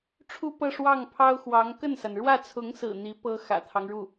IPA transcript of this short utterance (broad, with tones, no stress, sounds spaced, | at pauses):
ʈ͡ʂʰ u˥ p ɤ˥˧ ʂ w ɑ˥˩ ŋ pʰ ɑ˥ ʊ̯ x w ɑ˧˥ ŋ k ə˥˩ n s a˩ n ɻ w ä˥˩ t͡sʰ ʊ˧˥ ŋ s ɹ̩˨˩ n̪ i˧˥ p ɤ˥ x ä̰˨˩ t̪ʰ ɑ˦ ŋ ɻ u˥˩